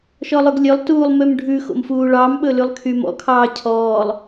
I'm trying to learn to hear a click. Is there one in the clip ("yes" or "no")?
no